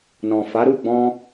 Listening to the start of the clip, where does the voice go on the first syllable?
low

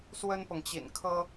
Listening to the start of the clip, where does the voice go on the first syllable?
high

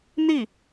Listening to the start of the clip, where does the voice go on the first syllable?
falling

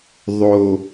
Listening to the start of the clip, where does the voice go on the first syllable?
low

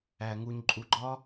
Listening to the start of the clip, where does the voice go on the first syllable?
low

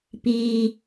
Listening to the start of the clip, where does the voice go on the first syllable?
high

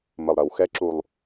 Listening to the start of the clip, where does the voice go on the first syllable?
low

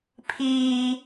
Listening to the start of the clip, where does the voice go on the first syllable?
high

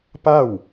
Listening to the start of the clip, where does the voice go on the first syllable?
falling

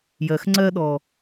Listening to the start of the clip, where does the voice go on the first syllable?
low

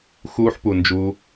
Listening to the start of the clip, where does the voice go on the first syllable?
high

